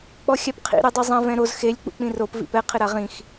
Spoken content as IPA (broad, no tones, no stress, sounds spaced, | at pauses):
k͡p ɔ xʲ a p qʰ ḭ ɾ e dˤ u zˤ ã v ɛ̃ ɾ o z x e lʲ k͡p ṵ k͡p ĩ r o p v ḭ p ɛ qʰ ɪ ɾ a ʁ ĩ x